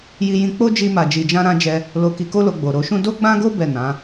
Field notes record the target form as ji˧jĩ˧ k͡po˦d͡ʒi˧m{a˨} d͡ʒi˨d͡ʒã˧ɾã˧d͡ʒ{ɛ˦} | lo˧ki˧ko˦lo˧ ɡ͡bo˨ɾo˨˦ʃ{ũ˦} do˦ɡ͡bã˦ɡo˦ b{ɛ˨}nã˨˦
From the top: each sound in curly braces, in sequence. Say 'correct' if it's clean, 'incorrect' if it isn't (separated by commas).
correct, incorrect, correct, incorrect